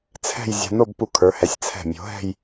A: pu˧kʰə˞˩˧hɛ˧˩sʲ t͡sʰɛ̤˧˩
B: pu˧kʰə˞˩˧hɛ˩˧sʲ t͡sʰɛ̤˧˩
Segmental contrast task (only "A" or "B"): B